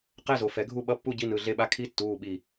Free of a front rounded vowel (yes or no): yes